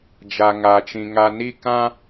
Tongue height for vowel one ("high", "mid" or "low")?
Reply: low